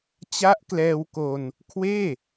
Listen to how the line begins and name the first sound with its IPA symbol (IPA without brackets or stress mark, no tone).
t͡ɕ